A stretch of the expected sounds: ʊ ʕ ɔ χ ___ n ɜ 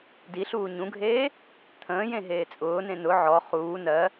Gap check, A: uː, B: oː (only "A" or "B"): A